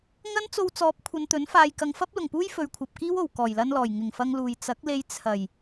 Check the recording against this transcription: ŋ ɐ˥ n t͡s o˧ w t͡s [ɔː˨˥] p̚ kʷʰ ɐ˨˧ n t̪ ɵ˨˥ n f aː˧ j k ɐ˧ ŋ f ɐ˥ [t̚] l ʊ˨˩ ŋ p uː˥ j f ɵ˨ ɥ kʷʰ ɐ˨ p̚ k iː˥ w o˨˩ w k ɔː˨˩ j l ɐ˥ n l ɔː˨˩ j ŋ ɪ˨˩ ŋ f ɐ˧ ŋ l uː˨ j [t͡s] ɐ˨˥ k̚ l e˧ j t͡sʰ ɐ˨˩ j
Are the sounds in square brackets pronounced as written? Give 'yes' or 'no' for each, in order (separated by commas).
yes, no, yes